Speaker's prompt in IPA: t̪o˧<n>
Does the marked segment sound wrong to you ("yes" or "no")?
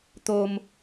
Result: yes